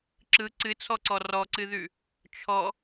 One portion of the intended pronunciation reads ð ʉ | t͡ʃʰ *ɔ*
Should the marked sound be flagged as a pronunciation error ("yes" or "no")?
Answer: no